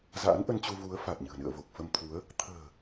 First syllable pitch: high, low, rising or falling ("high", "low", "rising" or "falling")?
rising